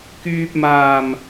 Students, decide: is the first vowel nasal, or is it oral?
oral